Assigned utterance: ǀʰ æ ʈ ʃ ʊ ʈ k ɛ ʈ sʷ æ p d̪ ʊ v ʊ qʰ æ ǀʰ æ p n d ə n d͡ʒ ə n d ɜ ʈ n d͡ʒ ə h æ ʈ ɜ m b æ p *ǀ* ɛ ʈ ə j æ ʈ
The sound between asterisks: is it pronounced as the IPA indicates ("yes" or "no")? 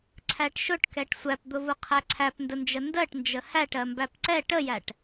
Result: yes